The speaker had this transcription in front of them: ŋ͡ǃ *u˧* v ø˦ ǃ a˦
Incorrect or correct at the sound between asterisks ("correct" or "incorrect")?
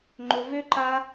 incorrect